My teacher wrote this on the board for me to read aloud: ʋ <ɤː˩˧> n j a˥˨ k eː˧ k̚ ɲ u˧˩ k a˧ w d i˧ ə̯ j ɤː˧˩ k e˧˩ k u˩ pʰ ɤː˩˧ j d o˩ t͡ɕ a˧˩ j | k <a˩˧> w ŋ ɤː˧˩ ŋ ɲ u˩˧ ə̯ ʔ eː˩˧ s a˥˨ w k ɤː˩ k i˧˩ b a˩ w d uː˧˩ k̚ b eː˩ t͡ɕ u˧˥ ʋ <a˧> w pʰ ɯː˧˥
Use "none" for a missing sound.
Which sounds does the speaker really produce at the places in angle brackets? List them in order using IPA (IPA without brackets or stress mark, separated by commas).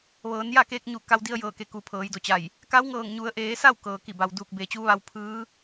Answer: ɤː˩˧, a˧˥, a˧